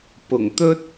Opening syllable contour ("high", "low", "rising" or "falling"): low